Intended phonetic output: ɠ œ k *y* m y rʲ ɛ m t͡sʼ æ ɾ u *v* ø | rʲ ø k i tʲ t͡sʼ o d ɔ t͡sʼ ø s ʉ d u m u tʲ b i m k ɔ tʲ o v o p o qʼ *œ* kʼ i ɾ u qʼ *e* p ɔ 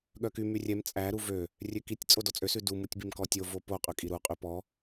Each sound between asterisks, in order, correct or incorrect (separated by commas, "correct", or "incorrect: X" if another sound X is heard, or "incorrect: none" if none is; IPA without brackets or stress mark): correct, correct, incorrect: ø, incorrect: y